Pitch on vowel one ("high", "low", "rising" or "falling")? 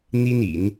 high